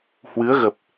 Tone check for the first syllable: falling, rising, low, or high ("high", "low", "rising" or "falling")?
rising